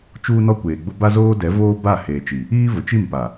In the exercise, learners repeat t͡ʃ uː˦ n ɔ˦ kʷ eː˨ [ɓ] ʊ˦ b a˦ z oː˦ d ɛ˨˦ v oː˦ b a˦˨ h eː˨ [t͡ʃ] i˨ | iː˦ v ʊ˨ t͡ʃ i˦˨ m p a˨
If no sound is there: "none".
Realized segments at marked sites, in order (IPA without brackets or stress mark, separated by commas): ɡ͡b, t͡ʃ